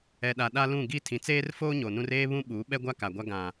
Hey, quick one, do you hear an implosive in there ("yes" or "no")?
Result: yes